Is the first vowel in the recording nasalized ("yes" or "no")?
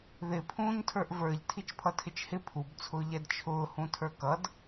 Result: no